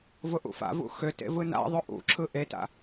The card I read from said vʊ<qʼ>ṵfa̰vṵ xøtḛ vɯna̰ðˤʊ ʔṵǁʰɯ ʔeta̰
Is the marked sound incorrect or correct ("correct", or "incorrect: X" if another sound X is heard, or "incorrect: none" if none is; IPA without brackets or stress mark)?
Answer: incorrect: ʔ